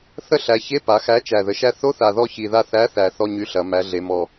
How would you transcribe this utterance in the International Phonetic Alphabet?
θ ə˦˨ ɬ æ˩˧ ç e˧˥˧ p a˩˧ x æ˨˥ t͡ʃ æ˨˩ ð ə˨˩ ʃ æ˦˨ θ o˧˥˧ θ a˨˩ ð ɔ˦˨ ç i˨˩ ð a˦˨ θ æ˨˥ θ æ˩˧ θ ɔ˧˥˧ ɲ y˨˥ ɬ ɐ˩˧ m æ˨˥ ɮ e˨˥ m ɔ˦˨

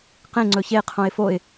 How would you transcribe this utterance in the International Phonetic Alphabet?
q ẽ ŋ͡ǀ ɵ ç e qʰ õ ɪ̯ f o ɪ̯

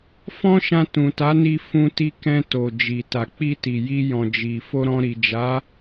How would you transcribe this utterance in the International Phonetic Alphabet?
f ɔ̃˦ ʃ ã˧ t ũ˨ t a˨˦ n i˧ f ũ˧ t i˧ k ɛ̃˧ t o˨ d͡ʒ i˨ t a˨ k͡p i˧ t i˨ j i˧ j ɔ̃˨ d͡ʒ i˨ f o˧ ɾ ɔ̃˧ ɾ i˨ d͡ʒ a˨˦

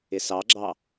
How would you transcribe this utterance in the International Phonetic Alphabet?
ɪ s ɑ ɡ͡ǁ ɑ

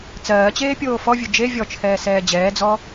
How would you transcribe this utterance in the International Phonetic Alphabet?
t͡s ɜː t͡ɕ eː pʲ oː f ɔ vʲ ɵ d͡ʒ e vʲ ɔ t͡ʃʰ ɛː s ɛː d͡ʑ ɛː d͡z ɔ

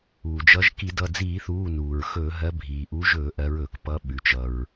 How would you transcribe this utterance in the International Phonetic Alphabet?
uː˩ d͡ʒ ʌ˨˦ ʒ k i˧˩˧ d ʌ˩˧˩ d͡z iː˧˩˧ θ uː˩˧˩ n uː˩ ɹ x ɵː˧˩˧ ɦ ɜ˨˦ bʱ iː˩ ʔ u˨˦ ʒ ɵː˧˩˧ ʔ ɜ˨˦ ɹ ɵː˩ k p ʌ˨˦ ɓ ʉ˩ t͡ʃ ʌ˩ ɹ

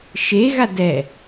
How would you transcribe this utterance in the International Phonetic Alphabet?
ʃ e ɣ a d ɛ

